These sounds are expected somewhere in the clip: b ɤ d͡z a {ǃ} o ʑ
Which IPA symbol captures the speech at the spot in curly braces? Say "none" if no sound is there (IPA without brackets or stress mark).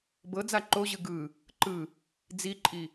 ǃ